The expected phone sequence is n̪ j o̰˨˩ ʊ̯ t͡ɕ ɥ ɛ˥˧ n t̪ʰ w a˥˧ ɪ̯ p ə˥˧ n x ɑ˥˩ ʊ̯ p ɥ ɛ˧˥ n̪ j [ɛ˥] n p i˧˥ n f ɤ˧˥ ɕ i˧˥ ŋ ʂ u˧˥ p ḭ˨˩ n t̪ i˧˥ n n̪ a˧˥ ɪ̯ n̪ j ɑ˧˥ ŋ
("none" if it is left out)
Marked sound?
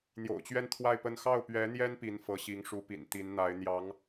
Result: ɛ˥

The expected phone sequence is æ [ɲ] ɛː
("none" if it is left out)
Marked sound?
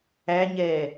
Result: ɲ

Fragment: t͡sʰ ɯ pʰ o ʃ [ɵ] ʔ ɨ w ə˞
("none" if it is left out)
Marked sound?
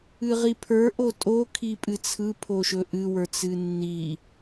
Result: ɵ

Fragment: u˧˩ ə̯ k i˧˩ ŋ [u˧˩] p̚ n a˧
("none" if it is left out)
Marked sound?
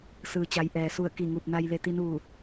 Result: u˧˩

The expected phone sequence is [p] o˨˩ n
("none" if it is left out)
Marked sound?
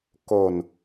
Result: k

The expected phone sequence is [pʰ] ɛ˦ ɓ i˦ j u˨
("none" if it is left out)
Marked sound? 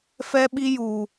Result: f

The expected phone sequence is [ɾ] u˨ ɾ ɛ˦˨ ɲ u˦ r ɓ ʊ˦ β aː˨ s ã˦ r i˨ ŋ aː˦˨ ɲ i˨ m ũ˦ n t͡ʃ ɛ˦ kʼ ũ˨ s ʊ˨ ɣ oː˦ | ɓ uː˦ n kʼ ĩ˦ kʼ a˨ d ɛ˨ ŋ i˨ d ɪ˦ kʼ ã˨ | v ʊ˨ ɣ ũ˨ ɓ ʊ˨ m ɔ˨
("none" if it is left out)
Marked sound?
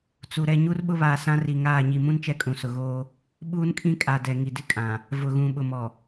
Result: t͡s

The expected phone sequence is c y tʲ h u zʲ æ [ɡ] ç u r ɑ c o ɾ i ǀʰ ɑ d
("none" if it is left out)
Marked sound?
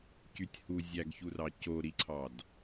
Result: ɡ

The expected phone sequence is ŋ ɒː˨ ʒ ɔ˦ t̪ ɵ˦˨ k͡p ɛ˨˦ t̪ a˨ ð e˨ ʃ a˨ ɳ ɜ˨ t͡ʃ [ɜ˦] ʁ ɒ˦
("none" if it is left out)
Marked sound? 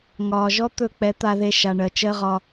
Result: ɜ˦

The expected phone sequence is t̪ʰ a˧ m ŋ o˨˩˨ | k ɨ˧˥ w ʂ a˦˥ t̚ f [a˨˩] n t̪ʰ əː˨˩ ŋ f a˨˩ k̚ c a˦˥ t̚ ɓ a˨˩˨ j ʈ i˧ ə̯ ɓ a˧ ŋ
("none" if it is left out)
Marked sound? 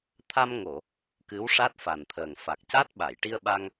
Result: a˨˩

